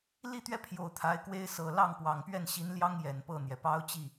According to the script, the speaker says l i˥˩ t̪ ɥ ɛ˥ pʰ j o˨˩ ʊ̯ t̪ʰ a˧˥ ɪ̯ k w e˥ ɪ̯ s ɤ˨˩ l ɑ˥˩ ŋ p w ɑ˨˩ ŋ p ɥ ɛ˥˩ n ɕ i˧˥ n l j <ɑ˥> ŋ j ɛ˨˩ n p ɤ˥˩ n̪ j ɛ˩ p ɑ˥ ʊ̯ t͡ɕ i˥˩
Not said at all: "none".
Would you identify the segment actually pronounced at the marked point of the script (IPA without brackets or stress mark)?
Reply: ɑ˥